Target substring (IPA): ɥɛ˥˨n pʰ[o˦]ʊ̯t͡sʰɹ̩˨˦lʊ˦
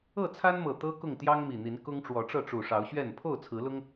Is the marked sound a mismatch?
yes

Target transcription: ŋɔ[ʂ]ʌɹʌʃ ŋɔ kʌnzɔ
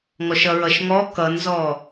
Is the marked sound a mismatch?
yes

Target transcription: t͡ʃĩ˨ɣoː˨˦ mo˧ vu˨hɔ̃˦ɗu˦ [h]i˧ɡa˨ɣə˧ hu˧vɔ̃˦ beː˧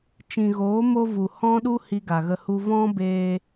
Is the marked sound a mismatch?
no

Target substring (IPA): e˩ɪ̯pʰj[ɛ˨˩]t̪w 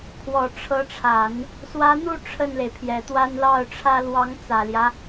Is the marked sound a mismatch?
no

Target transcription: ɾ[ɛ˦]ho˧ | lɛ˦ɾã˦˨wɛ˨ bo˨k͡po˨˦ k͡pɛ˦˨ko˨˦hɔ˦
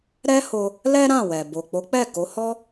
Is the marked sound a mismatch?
no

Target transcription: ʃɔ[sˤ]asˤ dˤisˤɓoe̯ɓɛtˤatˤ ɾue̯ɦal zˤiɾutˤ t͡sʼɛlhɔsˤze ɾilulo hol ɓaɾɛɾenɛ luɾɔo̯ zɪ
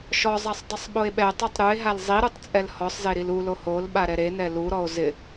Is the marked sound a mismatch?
yes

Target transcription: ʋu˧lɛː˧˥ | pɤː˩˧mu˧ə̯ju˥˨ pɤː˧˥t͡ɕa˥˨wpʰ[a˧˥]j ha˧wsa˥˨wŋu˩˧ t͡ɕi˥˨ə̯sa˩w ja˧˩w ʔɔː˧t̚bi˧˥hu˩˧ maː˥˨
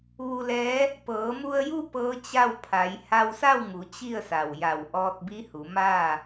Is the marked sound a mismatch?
yes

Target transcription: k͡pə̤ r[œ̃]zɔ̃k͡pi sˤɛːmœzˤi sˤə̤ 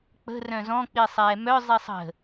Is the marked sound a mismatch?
no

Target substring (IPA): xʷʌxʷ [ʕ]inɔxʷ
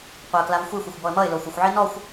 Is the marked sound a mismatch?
no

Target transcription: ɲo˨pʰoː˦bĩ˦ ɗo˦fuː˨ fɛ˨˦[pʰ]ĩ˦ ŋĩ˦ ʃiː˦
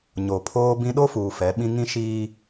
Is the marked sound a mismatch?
yes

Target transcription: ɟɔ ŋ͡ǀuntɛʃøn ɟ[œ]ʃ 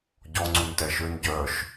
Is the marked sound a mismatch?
no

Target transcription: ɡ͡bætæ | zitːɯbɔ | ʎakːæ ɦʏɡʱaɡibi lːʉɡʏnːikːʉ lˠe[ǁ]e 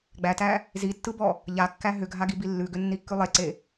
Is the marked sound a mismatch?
yes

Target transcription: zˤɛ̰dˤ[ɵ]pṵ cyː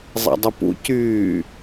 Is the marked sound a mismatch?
no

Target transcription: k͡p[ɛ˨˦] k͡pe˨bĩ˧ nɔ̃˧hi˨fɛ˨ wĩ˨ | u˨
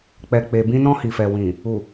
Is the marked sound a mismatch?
yes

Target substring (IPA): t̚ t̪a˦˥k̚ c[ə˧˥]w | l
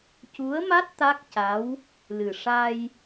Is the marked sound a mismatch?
yes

